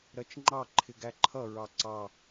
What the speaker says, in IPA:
ɾ ɜ t͡ʃ ŋ͡ǃ ɑ ǃʰ ɪ ɡ æ ǃʰ ʌ ɹ ɑ ǀ ɑ

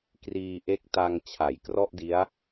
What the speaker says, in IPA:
k r iː˧ ʔ e˦˥ k̚ t a˧ ŋ t͡ɕʰ a˩˦ j k r ɔ˥˩ ʔ d i˦˥ a̯

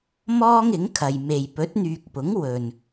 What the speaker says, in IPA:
m ɔː˥ ŋ ɪ˨˥ ŋ kʰ ɐ˨ j m e˨ j p ɵ˨˥ t̚ n̪ yː˨ k̚ p ʊ˨˥ ŋ w ɵ˨ n

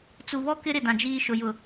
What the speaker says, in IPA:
t͡s u˨ β ɔ˦ k ɪ˦ ɾ ɪ˨ d ã˨ d͡ʒ iː˦ ʃ ʊ˨ j ʊ˨

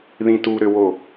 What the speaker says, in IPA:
ð ĩ t u ɾ ø w o

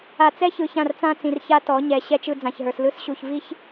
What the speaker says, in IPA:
a˨ t͡s ɛ˦ ç ɯ˨ ç ã˦˨ r t͡s ã˦ t͡s ĩ˨ r ç a˦ t ɔ˨˦ ɲ ɛ˨ ɕ ɛ˦ t͡ʃ ɯ˦ d͡z ã˨ ç ɦ ə˞˨ s l ɯ˦ s ɕ u˨ ç v i˦ ç

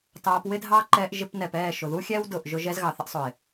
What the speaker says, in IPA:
t ɑː˧ p w ɪ˦ dʱ ɑ˦ ǃ ɛː˧ ʔ ʒ ɪ˧ p n ɛ˨ p ɛː˦˨ ʃ ʊ˨ ð u˦ xʲ ɛː˦ w d ʊː˨ ʔ ʒ ʊ˧ ʒ ɛ˧ z ɣ ɑ˨ θ ɪ˦ ʔ sˤ ʊ˨ ɪ̯

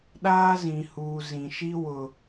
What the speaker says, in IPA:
ɗ aː˦ z ĩ˨ h uː˨ z ĩ˨ ʃ i˦ w ʊ˨

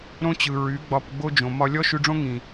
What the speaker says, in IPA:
ɾ õ˦ t͡ɕ ɯ˨ ɹ y˨˦ ɡ͡b ɒ˧ p ɡ͡b o˦ d͡ʒ õ˨ m ɒ˧ lʲ ɔ˦ ʃ y˧ ɖ͡ʐ õ˦ ŋ ĩ˨

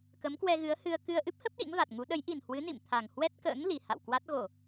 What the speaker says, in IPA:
k ə˨˦ m k w ɛ˧ ɣ ɨ˨˦ ə̯ h ɨ˧ ə̯ k ɨ˧ ə̯ ʔ ɨ˦˥ p̚ h ə˦˥ p̚ ɗ ḭ˧˥ ŋ v a˨˩ t̚ ŋ u˨˦ ɗ ə˨˦ j ʔ i˨˩ n h w ɨ˨˦ n ḭ˧˨ m t̪ʰ a˨˩ ŋ h w ɛ˦˥ t̚ k ə̰ː˧˥ ŋ l i˨˩ h a̰˧˨ w k w a˦˥ t̚ ɣ o˧˩˨

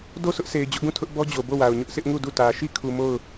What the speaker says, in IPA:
d o˦˨ sʰ ʊ˦ ʔ sʰ e˨ ɪ̯ d͡ʑ ʊ˦ ʔ ɡ ũ˦˨ tʰ ʊ˦ ʔ b ɔ˦ d͡ʑ o˨ b o˦˨ w a˨ ʊ̯ ɲ ʊ˦ ʔ sʰ ɪ˦ ʔ ŋ u˦˨ d u˦˨ t ä˨ ʃ i˦˨ kʰ u˨ m o˦˨ ʊ̯

